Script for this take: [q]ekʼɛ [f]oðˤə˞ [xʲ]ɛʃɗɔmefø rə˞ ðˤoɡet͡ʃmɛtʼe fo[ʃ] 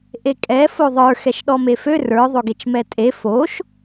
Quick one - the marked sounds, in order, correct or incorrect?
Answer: incorrect, correct, incorrect, correct

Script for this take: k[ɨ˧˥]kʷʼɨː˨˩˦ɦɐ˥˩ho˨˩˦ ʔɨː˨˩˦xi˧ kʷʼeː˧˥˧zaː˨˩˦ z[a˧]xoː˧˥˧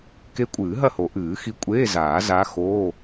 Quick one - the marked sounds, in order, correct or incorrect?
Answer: incorrect, incorrect

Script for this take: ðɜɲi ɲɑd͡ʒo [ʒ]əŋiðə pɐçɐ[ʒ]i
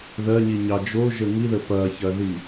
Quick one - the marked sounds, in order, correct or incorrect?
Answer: correct, incorrect

